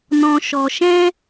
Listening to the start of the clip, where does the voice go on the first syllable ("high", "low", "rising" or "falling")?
low